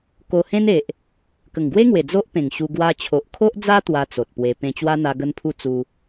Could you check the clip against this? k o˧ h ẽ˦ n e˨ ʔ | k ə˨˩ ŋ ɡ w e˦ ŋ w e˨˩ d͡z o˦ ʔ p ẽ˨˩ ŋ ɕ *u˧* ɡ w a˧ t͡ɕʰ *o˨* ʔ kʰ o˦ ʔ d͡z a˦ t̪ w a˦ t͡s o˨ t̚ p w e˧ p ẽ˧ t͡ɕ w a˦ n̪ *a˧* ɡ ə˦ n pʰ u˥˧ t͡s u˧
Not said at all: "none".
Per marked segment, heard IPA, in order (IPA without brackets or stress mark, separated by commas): u˧, o˨, a˧